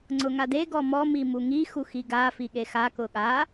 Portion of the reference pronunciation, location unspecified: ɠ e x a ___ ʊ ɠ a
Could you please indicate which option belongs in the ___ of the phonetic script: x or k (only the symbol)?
k